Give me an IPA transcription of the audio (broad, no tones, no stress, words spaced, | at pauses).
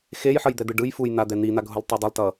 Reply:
xejħʌjd̪ɛd̪ɯ ɖɯj fujn̪ad̪ɛ n̪in̪aɡʱulˠtˤi dˤʌlˠtʌ